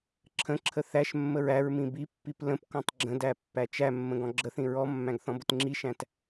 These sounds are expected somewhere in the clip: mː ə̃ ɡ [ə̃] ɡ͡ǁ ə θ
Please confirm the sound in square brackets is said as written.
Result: no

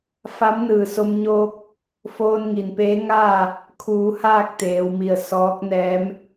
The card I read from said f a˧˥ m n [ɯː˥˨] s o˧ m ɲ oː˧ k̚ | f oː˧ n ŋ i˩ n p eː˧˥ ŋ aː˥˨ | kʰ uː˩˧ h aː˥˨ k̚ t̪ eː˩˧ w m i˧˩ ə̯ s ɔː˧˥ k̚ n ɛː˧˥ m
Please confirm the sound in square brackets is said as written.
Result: no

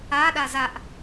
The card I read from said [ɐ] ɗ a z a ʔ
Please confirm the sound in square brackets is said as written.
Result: no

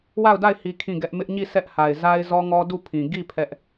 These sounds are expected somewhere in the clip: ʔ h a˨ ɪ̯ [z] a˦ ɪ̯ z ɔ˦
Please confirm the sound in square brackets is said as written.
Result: yes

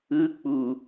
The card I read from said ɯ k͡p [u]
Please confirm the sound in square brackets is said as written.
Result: yes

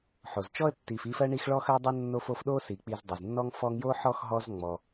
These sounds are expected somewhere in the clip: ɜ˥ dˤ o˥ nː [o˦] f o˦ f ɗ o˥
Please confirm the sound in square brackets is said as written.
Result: yes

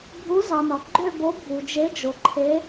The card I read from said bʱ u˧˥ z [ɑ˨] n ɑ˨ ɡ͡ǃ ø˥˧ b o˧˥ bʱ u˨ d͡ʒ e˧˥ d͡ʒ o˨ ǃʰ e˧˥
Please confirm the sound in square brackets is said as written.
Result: yes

